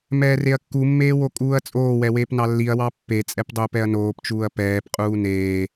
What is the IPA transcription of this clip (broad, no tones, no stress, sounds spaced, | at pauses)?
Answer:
m ɛː r e ɐ̯ kː u mː eː w o kʼ uː ɐ̯ t͡sʼ oː w ɛ w eː p n ɑ lː i ɐ̯ w ɑ pː e t͡sʼ ɛ p dˤ oː p ɛ ɐ̯ n oː p t͡ʃ uː ɐ̯ p ɛː p qʼ uː n eː